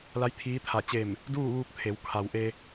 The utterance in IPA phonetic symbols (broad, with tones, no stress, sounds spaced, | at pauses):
l a˧˥ j t̪ʰ iː˧˥ t̪ʰ a˧˩ t͡ɕ e˧˩ m | d uː˥˨ ʋ uː˧ p̚ t̪ʰ e˩˧ w kʰ a˩ w ʔ e˧